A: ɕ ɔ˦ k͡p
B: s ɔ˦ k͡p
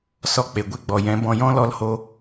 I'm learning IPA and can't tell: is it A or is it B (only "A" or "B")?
B